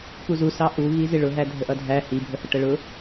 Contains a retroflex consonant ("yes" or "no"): yes